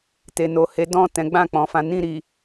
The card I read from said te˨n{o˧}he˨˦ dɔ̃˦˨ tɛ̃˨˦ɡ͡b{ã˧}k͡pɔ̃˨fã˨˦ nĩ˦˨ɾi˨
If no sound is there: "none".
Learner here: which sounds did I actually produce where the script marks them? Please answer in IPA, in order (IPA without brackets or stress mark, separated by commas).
o˨, ã˦˨